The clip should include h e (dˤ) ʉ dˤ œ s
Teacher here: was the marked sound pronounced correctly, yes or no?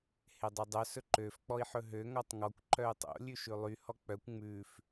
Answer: yes